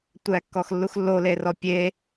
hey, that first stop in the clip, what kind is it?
plain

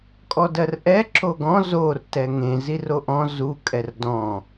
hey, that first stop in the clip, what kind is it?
ejective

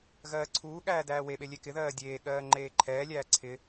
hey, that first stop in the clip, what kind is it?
click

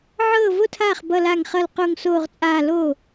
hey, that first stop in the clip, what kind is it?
aspirated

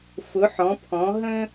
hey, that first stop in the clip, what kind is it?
aspirated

